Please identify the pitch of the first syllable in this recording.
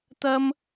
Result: high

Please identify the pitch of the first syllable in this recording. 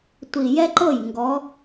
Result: low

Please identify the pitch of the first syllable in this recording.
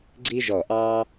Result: high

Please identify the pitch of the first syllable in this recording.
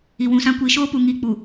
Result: low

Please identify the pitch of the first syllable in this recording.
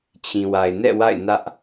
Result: low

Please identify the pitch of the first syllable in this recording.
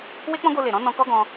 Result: high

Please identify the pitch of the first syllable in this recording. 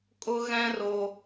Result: high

